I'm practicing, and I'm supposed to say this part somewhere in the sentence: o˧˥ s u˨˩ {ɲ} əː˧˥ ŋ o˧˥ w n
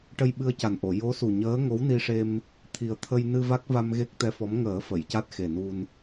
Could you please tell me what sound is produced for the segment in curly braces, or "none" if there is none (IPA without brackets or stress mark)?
ɲ